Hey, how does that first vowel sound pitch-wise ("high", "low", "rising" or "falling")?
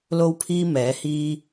high